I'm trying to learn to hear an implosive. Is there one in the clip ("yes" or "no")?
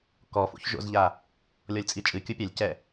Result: no